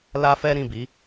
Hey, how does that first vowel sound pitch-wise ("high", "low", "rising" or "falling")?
high